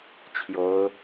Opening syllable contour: high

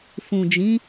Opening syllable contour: low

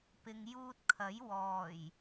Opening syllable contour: low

